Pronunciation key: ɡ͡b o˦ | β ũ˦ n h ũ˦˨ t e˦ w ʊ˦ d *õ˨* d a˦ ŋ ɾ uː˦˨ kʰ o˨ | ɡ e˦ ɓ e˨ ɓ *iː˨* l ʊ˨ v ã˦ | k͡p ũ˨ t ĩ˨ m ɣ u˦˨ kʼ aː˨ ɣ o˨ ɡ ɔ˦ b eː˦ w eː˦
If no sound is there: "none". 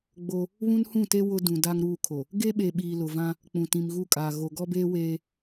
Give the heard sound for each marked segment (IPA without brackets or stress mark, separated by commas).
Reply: ũ˨, iː˨